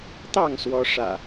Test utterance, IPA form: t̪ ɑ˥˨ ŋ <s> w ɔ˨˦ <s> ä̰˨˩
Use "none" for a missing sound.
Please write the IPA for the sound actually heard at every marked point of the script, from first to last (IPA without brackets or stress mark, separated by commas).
s, ʂ